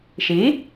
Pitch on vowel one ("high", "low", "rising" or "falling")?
rising